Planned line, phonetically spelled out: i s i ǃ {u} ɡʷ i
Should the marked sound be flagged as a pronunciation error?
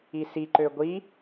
yes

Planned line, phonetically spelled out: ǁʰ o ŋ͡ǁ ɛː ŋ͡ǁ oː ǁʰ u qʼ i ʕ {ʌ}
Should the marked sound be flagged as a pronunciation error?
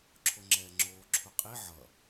no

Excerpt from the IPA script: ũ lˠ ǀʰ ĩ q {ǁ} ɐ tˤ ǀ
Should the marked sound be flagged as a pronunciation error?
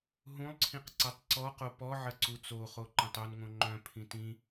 yes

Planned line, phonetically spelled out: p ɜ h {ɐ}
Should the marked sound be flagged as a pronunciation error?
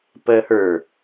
yes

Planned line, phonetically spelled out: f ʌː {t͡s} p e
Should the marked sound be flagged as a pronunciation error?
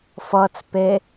no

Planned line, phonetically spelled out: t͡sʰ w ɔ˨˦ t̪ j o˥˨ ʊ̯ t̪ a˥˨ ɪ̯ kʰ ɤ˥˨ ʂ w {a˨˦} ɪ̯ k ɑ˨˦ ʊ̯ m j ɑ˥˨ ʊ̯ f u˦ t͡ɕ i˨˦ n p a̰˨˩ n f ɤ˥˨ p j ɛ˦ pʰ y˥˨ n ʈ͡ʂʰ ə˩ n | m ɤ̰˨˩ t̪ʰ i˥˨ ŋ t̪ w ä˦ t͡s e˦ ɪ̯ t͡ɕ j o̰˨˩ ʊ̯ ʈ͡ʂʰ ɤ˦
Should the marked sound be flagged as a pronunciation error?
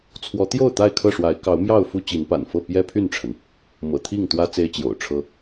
no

